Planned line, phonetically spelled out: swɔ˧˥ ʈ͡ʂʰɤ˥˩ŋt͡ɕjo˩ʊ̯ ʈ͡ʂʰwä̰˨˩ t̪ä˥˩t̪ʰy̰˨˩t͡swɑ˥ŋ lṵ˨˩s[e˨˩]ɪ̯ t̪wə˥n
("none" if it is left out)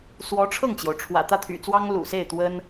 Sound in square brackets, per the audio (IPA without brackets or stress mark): e˥˩